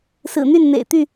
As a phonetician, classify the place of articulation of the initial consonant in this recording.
alveolar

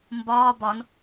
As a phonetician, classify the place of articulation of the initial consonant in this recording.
labial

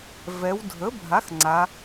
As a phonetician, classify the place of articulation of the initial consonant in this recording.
labial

